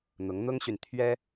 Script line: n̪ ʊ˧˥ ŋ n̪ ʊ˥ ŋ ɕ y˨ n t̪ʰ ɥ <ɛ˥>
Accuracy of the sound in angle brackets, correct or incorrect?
correct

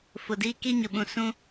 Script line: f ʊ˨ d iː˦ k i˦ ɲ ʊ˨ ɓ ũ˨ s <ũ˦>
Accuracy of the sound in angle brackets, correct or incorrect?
correct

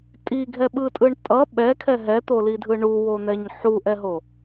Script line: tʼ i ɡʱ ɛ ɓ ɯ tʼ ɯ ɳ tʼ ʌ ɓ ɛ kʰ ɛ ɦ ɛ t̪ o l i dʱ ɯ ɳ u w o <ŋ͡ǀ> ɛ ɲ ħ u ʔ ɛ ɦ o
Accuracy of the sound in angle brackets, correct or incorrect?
incorrect: n̪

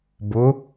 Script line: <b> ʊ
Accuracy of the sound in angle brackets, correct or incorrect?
correct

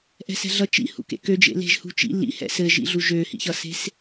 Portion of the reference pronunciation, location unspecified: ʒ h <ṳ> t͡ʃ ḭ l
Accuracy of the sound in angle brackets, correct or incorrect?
correct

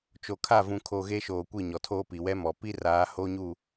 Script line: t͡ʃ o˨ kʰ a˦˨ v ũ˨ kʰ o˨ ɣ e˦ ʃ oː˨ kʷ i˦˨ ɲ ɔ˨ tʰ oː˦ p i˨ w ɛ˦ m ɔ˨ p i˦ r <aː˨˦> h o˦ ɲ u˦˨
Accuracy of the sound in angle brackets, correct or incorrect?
correct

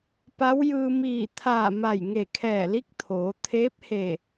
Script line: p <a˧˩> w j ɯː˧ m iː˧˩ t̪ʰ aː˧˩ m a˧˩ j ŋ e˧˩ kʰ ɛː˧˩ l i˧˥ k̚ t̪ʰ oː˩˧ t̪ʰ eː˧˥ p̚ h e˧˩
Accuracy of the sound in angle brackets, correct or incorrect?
incorrect: a˧˥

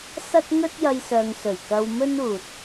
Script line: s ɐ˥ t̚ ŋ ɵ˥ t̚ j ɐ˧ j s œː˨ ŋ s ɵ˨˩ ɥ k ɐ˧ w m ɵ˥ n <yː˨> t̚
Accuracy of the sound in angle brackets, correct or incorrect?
incorrect: uː˨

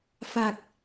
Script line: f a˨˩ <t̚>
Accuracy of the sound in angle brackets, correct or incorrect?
incorrect: k̚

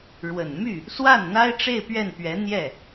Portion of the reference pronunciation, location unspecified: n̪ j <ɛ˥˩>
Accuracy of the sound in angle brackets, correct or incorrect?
correct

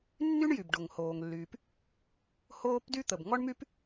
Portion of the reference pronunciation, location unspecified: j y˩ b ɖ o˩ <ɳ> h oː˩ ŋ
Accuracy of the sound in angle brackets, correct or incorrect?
incorrect: ŋ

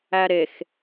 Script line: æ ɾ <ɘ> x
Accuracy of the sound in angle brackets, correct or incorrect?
incorrect: e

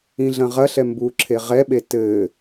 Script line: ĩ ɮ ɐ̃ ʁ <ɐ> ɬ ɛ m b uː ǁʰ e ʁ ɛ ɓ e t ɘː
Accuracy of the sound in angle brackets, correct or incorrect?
correct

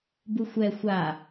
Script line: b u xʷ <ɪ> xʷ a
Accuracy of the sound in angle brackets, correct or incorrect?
incorrect: ɛ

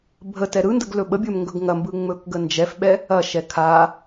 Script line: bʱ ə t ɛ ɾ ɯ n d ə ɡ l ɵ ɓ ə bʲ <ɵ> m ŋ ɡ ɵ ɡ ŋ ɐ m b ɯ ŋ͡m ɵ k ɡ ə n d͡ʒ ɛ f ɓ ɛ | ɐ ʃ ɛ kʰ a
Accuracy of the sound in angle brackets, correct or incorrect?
correct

